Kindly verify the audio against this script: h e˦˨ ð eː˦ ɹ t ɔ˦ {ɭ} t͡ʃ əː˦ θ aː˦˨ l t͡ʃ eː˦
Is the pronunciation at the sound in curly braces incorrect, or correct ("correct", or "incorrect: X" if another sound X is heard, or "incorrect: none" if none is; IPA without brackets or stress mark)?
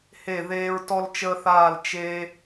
incorrect: l